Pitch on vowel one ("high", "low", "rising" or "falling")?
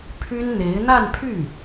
high